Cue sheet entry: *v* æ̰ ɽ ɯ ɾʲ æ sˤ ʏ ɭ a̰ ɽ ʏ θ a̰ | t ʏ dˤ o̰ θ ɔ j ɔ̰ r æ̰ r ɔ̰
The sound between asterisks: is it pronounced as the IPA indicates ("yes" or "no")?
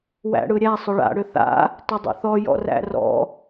no